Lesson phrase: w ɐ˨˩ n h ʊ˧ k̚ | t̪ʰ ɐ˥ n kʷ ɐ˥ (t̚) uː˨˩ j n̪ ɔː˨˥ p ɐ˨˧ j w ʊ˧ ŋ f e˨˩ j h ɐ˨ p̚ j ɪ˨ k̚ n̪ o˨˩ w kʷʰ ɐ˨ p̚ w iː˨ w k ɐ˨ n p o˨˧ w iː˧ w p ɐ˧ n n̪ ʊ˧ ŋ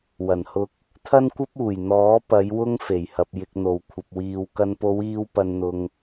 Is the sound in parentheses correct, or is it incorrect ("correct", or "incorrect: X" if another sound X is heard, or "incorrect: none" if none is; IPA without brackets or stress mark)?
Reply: incorrect: p̚